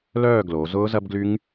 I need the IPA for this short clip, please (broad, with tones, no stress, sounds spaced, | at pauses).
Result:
l œː˦˨ ɡ l o˩˧ z ʊː˦˥ z ɐ˦˥ b ɡ l y˦˥ ŋ